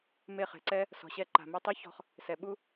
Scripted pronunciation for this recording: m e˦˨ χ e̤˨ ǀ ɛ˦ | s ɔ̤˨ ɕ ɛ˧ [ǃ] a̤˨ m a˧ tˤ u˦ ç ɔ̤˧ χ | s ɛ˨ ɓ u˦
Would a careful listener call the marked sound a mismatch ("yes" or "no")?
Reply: no